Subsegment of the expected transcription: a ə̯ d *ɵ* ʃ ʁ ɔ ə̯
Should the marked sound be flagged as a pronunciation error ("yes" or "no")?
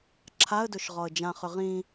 no